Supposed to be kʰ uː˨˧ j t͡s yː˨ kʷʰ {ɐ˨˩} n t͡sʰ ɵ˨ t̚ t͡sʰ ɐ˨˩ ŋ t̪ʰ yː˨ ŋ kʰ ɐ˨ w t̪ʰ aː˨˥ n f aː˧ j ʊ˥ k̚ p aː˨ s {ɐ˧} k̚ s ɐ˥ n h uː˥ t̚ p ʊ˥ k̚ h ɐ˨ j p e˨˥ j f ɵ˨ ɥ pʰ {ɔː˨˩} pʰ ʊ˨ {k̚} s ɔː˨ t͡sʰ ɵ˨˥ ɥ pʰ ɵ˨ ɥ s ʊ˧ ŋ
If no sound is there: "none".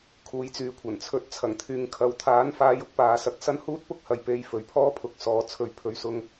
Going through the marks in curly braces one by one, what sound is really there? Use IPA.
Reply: ɐ˨˩, ɐ˧, ɔː˥, k̚

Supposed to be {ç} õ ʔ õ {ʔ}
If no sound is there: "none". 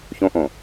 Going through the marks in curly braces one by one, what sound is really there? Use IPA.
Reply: ç, none

